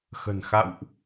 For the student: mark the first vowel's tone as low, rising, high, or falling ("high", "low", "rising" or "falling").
low